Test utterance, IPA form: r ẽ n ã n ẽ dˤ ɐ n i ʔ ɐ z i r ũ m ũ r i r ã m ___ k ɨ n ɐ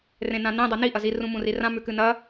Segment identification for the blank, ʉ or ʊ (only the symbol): ʉ